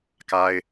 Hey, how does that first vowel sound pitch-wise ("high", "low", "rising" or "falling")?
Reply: high